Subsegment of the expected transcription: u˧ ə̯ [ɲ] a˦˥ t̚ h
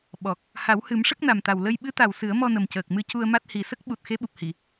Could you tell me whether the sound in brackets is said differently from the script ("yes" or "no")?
yes